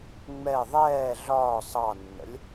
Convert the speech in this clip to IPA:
ŋ͡mɛ ðˤɛː ɮɒː sˤɑnːə̰lʲ

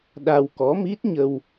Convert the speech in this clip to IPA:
ɗa˧wkɔ˨˦mi˦˥t̚ɲə˧w

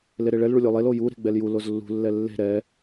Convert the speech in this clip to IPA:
leɾeɭɛl ɭulʲolˠel oju ɾe̤ɡ͡bɛlju lozlːṳ lːɛlːe̤ ɾɛ

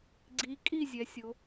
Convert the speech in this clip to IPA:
ɡ͡ǀi˩˧ kʼi˥˨zʲɛ˩˧sʲo˩˧

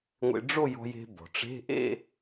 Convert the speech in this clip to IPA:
ŋʷḛ˧ɖ͡ʐo˥˧jɔ̤˧je̤˧ bɔ̤˩ʈ͡ʂe̤˧˥˧ʔḛ˥˧

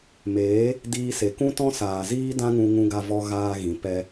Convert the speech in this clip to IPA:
meː˨˦ | diː˧se˨ kũ˦tɔ̃˦saː˨ziː˦ dã˦ŋũ˧ ŋũ˧ɡa˧vɔ˧ ɣaː˧ɣĩ˨ pɛ˧

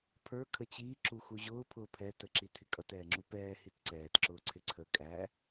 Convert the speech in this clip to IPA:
pʰə˞ kʰət͡ɕiː ǁuxuʑʊː pʰʊːpʰɛ təǁitʰɪkʼʌt ɛːŋ͡ǁupɛː hitǀɛːt ǁʊːǀʰɪǀʰə kʼæ

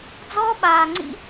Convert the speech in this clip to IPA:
d͡zɔː˦ɓaː˧ŋ͡ǀḭ˦

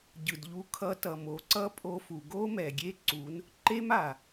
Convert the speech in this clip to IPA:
ɟɯ˨d ʎu˧kʰʌ˧tʌ˨mo˨ ǀʌ˦pʼo˧fu˨ ɡo˦mɛ˨ɡʲe˦ǀu˨˦n | ǃe˦ma˨

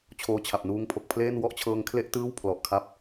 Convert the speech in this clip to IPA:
t͡ɕʰoː˧t͡ɕʰa˨˩p̚ nuː˦˥ŋpʰo˨˩k̚pʰleː˥˩n wɔ˥˩ʔt͡ɕʰɤː˧ŋkʰle˥˩ʔ tɯː˥˩w pʰlɔ˨˩ʔkʰa˦˥p̚

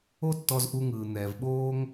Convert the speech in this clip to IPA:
o˥tːɔ˧zʔu˧ŋɯː˩ n̪ɛː˩vɓoː˥ŋ

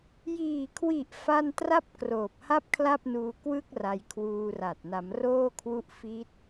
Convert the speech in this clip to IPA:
jiː˨˩kʰwi˨˩ʔ fa˥˩n tra˥˩p̚ kroː˨˩p̚ha˥˩p̚ kʰla˥˩p̚nuː˧ kwɯ˥˩k̚ ra˧jkʰwuː˧ra˨˩t̚ na˩˦mroː˥˩kʰwu˥˩ʔ fi˦˥t̚

